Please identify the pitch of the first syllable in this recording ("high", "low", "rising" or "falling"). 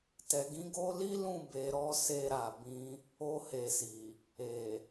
low